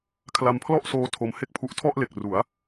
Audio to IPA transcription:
kʰla˧mpʰlɔ˥˩ʔ soː˦˥tʰo˧mhe˥˩k̚pʰu˦˥ʔ tʰɔ˥˩ʔle˨˩k̚ru˩˦a̯

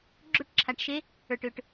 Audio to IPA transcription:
ɡ͡ǁo˥˧ʈǁʰa˨˩ʈʃe˧˥ | ə˞˨˩ʈʏː˨˩ʈ

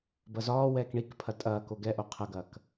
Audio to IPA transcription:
bɐzɒːwɛːk ɳikpʰɐ tʼɐːko ɡɛʔo qʰɐɡɐːk

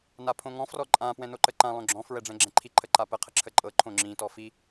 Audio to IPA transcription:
napʰõŋɔ̃ frɔǃʼã pwɛ̃noǃəǃã lˠõɡ͡ǁɔ̃ fɹɛɖ͡ʐɛ̃ɡ͡ǁɛ̃ǃʰi ǃʰəǃapə qʰəǁʰəǃʼɤ ǃʰõŋ͡ǁĩ tɔfi

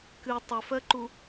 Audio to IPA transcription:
kɨ tˤʊfɜǃu

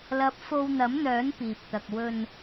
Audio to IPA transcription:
lɐ˧p̚ fo˧wn̪ɐ˨˥mn̪œː˨˥n piː˨p̚t̪ɐ˧k̚ wɵ˧n

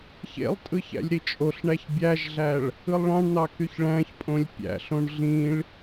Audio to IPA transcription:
çḛlˠtʼɯ çæ̰lʲɾit͡ʃʼoɬɳæç bʲæʒɮæɭ | ɯlˠɭɑ̃ɳn̪ɑ kyçɭæ̃çpʼõlʲ pʲæ̰ɬõɳ ɮĩɭ

